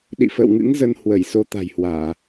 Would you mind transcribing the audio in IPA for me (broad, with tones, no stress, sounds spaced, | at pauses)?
ɗ ḭ˧˨ f ə̰ː˧˨ w ŋ ɨ̰˧˥ ŋ z ə˧ n h w ə˧˩ j s o˧ t̪ a̤˨˩ j h w aː˧˩˨